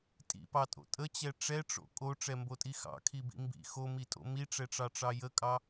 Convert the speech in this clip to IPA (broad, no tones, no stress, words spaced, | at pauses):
tʼḭpɑtʼo̰ tʼət͡ɕɛ ʈ͡ʂɛʈ͡ʂo̰ kʼoʈ͡ʂɛmbotʼi xɑ̰kʰibḭ mbḭ xomitʼo̰ miʈ͡ʂɛʈ͡ʂɑʈ͡ʂɑ jəkʼɑ